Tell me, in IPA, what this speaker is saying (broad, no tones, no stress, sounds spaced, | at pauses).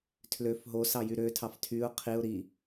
tʰ l ø f ɦ o s ɑ j y ɾ ø tʰ ɑ f tʰ y ʊ̯ qʰ i ʊ̯ ɾ i